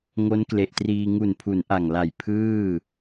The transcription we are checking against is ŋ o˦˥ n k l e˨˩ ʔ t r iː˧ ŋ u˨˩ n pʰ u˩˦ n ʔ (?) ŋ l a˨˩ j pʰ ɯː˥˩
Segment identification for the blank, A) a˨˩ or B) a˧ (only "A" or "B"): A